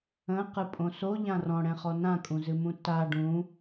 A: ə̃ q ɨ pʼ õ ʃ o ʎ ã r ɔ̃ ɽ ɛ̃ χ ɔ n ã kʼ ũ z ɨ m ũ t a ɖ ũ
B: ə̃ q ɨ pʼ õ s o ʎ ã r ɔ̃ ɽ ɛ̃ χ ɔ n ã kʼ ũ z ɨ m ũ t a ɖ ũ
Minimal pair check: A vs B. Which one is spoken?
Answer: B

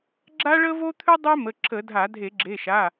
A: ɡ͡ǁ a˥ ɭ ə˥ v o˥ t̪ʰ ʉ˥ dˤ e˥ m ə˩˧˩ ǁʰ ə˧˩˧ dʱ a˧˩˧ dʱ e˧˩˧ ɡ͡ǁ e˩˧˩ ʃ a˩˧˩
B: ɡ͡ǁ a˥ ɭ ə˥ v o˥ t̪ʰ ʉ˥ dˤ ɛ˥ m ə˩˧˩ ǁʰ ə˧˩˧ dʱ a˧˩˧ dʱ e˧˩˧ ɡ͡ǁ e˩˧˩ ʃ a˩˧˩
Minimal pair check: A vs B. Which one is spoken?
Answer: B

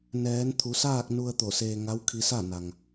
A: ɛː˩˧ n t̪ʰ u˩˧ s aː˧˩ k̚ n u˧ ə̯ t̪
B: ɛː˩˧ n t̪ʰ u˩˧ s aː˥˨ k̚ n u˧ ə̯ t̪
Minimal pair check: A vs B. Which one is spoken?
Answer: B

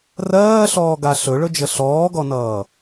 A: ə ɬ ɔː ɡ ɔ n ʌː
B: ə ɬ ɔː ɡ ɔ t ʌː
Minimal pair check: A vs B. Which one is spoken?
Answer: A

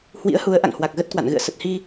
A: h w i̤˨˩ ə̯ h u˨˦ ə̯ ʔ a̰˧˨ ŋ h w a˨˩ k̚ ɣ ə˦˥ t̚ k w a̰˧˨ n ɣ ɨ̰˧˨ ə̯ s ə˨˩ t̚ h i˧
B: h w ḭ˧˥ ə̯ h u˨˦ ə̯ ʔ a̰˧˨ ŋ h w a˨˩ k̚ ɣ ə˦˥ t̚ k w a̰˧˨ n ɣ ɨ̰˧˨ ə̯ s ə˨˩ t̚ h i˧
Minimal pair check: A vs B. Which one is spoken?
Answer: B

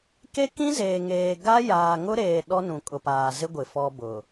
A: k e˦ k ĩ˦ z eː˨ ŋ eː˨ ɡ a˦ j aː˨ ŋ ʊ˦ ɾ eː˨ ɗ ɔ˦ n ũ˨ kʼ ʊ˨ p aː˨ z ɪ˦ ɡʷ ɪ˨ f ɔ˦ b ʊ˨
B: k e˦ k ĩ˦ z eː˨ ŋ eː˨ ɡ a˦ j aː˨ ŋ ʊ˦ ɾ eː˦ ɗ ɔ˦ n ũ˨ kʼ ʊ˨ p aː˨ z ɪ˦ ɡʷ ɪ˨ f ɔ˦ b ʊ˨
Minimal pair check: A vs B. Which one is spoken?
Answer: A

